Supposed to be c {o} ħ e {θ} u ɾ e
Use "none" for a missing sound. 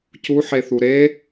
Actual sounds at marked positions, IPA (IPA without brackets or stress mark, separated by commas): u, θ